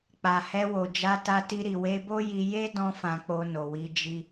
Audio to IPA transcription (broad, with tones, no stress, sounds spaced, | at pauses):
k͡p a˨ h ɛ˧ w o˨ d͡ʒ a˧ t a˧ t i˧ ɾ i˨ w e˧ b o˦ j i˧ j e˦ d ɔ̃˦ f ã˧ k͡p o˧ n o˨ w i˧ d͡ʒ i˧